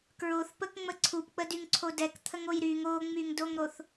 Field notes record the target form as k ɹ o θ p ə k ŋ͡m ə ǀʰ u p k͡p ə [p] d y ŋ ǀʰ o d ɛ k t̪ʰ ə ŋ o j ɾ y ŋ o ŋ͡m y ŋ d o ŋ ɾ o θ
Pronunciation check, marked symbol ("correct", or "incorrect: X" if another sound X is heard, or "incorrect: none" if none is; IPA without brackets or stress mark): incorrect: none